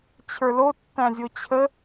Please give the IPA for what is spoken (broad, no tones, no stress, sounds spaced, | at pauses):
t͡ɕʰ ə˞ l o tː æ̃ zʲ o t͡ɕʰ ə